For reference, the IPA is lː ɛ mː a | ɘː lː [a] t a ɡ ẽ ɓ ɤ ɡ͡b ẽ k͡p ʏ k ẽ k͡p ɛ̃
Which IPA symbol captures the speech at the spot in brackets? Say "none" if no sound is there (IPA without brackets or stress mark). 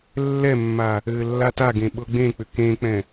a